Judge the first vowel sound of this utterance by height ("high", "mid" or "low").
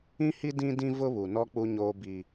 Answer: high